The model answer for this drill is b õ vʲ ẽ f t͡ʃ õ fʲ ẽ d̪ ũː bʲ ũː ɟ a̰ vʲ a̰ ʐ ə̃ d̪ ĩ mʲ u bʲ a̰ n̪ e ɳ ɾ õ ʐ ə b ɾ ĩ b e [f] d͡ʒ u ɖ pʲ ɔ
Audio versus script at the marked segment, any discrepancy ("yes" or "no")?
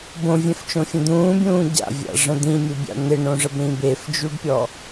no